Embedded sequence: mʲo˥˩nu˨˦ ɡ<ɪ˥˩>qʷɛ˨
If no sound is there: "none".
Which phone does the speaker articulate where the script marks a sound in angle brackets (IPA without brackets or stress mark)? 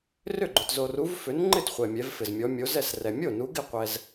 ɪ˥˩